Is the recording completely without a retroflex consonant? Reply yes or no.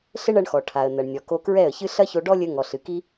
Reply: no